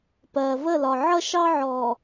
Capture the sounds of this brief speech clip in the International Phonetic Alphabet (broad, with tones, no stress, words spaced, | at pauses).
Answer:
pɜː˨və˦˨lɒ˨ ʕʌ˦ʃɑ˦ʕɔː˨